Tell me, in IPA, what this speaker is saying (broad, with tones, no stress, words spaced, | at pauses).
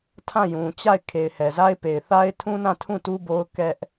tʰã˦˨jũ˨ t͡ɕa˦˨ɪ̯ kʰe˨ɪ̯hɛ˨za˦ɪ̯pe˨ɪ̯ θa˦ɪ̯tʰũ˦nã˦˨tʰũ˦˨ tu˦bo˦ʊ̯ kɛ˦ʔ